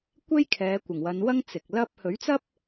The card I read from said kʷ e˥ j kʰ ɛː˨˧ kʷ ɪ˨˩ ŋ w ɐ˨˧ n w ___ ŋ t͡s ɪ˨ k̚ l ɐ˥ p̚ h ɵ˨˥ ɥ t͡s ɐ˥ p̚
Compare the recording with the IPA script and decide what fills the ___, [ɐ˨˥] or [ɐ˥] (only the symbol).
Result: ɐ˥